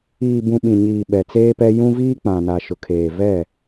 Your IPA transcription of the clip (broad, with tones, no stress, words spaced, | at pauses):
iː˨bũ˨ ɓĩ˨ɲiː˨ ɓɛ˨t͡seː˦pɛ˦ jũ˦viː˦k͡pã˨na˨ ʃʊ˨kʰeː˨vɛ˦˨